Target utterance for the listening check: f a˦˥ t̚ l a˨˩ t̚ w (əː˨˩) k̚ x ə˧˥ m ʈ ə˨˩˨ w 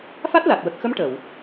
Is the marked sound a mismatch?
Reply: yes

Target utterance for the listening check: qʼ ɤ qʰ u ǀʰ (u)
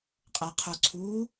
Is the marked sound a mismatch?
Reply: no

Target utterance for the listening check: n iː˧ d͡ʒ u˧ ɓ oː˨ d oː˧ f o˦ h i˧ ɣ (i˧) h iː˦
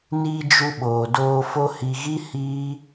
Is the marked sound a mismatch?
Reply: yes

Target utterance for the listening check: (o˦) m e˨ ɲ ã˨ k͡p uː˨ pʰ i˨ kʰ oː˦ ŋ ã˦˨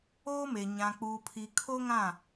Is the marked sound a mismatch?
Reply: yes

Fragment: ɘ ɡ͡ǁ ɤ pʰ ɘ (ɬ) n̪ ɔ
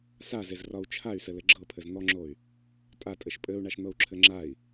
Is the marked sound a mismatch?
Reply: yes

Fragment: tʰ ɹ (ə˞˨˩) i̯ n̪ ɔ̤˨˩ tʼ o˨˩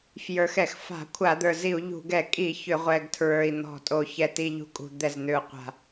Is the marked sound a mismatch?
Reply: no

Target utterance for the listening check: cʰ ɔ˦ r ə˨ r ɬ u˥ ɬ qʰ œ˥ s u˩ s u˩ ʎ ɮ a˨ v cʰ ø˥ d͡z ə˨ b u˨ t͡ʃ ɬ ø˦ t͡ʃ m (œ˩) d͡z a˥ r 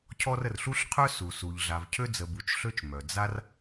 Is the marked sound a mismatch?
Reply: no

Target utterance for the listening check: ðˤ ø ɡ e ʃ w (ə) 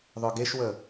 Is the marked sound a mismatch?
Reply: no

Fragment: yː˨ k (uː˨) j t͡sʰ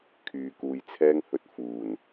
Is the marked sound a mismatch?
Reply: no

